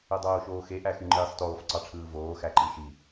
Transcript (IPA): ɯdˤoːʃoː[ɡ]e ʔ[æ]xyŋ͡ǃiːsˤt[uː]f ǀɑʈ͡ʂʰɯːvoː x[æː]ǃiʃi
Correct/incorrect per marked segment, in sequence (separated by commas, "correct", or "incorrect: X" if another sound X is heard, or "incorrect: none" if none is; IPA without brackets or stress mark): incorrect: x, correct, incorrect: oː, incorrect: æ